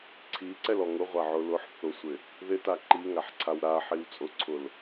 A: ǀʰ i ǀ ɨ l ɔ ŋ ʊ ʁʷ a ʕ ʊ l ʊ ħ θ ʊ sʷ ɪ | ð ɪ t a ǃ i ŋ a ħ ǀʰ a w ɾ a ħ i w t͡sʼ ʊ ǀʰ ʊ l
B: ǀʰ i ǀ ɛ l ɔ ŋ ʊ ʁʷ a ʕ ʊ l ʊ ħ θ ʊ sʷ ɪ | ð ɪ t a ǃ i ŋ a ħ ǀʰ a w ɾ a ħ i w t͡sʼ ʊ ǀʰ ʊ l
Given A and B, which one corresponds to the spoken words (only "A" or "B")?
B